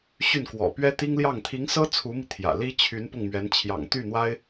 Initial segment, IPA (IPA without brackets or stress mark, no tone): ɕ